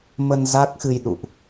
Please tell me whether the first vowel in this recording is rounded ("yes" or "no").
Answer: no